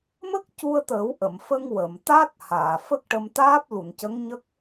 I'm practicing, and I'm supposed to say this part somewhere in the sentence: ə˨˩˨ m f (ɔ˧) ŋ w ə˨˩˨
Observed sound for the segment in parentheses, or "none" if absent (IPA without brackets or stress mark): ə˧